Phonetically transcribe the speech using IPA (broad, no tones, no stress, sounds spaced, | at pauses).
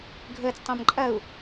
ɡʱ əː t͡s tˤ ə̃ː m ǃʼ ɐ u̯